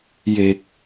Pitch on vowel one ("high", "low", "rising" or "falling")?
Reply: low